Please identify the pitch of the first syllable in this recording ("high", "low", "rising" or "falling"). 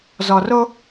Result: low